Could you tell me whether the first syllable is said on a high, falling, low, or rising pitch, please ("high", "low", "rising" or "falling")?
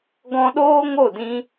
high